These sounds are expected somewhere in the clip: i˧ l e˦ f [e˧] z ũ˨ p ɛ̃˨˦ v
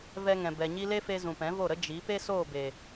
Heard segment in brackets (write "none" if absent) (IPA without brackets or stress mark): e˧